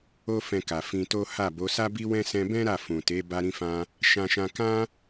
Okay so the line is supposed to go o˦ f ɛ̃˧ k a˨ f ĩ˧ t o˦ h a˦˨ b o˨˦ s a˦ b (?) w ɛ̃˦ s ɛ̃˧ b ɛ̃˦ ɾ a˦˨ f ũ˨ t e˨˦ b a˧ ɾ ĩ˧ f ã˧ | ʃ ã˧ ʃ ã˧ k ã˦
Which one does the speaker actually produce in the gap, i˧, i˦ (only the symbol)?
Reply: i˦